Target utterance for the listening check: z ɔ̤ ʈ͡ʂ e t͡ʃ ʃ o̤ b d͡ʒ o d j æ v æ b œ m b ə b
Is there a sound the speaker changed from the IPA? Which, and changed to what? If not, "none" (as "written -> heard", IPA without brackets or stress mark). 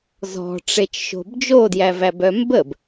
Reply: none